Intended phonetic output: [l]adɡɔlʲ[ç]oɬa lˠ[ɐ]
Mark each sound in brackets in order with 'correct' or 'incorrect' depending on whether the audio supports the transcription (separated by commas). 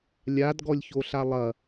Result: incorrect, correct, correct